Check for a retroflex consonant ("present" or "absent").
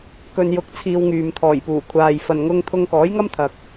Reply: absent